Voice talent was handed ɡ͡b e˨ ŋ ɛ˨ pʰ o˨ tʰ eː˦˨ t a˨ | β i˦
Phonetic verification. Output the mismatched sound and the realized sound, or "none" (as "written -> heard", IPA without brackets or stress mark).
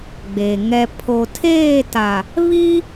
none